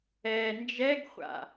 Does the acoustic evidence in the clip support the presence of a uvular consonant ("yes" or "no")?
yes